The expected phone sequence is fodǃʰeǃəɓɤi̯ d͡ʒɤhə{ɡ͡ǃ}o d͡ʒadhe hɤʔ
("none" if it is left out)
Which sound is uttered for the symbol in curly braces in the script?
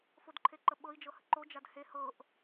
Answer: ǃ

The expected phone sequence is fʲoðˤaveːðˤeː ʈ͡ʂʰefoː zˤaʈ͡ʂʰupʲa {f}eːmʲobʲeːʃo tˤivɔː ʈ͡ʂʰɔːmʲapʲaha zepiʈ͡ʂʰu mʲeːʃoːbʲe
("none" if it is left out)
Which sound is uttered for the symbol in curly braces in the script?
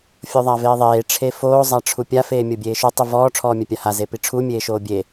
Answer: f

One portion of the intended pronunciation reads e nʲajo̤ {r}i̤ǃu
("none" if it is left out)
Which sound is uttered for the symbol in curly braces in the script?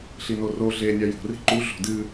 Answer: r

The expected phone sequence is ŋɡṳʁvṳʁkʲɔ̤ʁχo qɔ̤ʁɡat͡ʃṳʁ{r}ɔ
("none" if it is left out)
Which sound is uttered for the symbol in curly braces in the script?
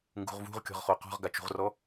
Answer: r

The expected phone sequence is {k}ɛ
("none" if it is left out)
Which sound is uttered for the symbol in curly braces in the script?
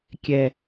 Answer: kʲ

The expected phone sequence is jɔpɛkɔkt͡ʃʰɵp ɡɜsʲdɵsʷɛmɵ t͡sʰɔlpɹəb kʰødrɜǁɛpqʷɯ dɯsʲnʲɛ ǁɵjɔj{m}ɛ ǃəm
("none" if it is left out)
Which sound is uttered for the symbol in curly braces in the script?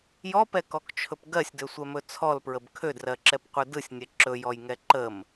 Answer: ŋ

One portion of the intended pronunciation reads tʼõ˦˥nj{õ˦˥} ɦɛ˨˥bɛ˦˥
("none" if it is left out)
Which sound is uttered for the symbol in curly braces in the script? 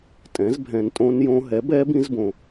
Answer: õ˦˥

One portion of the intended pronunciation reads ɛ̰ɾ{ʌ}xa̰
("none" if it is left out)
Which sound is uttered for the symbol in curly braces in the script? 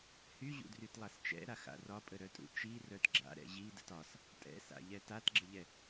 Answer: a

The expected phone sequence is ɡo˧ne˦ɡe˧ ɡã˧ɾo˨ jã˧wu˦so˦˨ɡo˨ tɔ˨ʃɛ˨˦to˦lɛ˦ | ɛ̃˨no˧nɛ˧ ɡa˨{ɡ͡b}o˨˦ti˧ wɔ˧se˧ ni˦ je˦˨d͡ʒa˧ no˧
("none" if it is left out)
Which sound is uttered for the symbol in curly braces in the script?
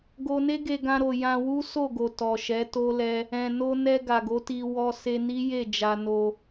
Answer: ɡ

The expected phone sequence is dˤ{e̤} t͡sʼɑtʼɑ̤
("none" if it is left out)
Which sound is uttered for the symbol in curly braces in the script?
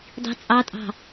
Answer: i̤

